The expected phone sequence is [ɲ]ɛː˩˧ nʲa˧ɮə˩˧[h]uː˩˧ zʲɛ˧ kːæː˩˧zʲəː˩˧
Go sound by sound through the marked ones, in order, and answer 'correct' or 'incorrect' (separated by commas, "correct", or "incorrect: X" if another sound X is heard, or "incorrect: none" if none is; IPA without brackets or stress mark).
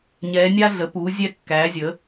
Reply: correct, incorrect: p